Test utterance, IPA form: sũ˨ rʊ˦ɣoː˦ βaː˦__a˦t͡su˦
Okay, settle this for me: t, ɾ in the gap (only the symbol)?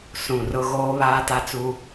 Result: t